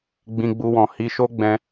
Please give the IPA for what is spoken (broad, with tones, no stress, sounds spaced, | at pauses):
ɡ͡b ĩ˧ ɡ͡b u˧ w ɔ̃˨ h i˧ ʃ o˦ ɡ͡b ɛ̃˧